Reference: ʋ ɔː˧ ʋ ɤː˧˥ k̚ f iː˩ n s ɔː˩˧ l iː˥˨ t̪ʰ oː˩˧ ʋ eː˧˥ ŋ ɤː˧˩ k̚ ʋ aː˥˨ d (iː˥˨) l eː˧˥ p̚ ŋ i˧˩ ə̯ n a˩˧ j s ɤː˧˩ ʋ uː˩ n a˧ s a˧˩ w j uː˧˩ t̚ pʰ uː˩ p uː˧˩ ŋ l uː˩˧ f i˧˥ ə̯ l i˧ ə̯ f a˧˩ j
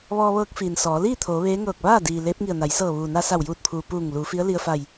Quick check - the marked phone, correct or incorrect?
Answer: incorrect